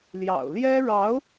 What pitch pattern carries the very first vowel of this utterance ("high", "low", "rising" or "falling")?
low